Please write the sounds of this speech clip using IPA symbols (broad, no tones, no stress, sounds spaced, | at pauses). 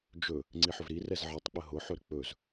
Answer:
d͡ʒ ɵ | ŋ͡ǀ i ħ ɵ v ɾ i r ɛ z ʕ ɜ tˤ k͡p ə ɦ ʊ ħ ɵ ɾ ə k͡p ɵ z